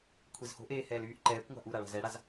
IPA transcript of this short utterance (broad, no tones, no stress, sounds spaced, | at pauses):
kʷʰ e z h o̤ ʔ eː h ɛː l yː ʔ ǃ ɛː kʷ ŋʷ a̤ ʔ u ɾ a ɭ a̤ z ɛ ɽ a z